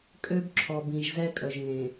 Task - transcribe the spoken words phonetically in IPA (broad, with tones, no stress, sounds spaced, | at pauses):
kʼ ø˦ b ǁʰ ɔ˨ b ĩ˨ ʒ z ɛ˦ kʼ œ˨ ʒ ŋ ẽ˨